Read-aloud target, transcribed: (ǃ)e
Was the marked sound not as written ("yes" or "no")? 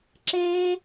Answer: yes